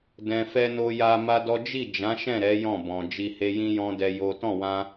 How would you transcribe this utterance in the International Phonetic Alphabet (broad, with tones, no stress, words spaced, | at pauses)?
dɛ̃˨fɛ˧no˧ ja˧ma˦dɔ˦ d͡ʒi˦˨d͡ʒã˨˦ʃɛ̃˦˨ ɾɛ˨˦ jɔ̃˦˨bɔ̃˨ d͡ʒi˧he˦ jĩ˦jɔ̃˦dɛ˧ jo˦ tɔ̃˦˨wã˧